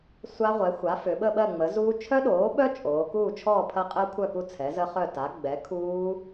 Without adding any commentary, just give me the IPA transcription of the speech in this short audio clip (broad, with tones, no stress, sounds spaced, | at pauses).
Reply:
sʷ a˦˥ ʁʷ ɛ˩˥ xʷ a˩˥ f ʏ˩˧ ɓ ə˥˨ ɓ ɜ˥˨ ŋ͡m ə˩˥ z uː˦˥ t͡ʃʰ œ˦˥ ɗ oː˩˥ ɓ œ˦˥ t͡ʃʼ oː˩˧ k uː˥˨ t͡ʃʰ ɔː˥˨ pʰ ɐ˦˥ qʼ ɜ˦˥ kʷʰ œ˥˨ k u˥˨ t͡sʰ ɛ˩˥ z ə˦˥ χ œ˥˨ t a˩˥ ɡ͡b ɛ˩˥ kʰ uː˦˥